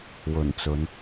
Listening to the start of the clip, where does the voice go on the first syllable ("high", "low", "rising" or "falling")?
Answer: low